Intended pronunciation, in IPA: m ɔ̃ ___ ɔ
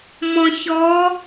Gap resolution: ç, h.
ç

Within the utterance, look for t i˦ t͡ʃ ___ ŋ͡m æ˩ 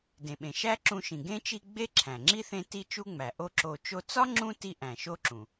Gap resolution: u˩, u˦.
u˦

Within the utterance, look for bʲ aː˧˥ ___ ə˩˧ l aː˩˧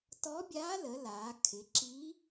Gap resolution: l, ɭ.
l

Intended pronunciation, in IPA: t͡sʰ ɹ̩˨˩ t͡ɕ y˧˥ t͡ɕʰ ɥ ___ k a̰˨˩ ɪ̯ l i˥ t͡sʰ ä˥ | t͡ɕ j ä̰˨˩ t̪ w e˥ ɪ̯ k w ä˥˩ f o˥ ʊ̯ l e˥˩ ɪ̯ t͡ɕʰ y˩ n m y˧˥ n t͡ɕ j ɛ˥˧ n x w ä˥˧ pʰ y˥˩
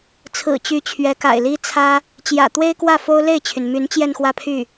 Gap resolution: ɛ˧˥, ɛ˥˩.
ɛ˧˥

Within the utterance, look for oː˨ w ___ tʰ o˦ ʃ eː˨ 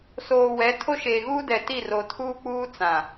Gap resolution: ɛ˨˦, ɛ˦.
ɛ˨˦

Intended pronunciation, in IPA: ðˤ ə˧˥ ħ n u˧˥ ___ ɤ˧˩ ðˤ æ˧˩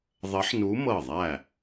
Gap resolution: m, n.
m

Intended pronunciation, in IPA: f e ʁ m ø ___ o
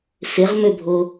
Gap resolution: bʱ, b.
bʱ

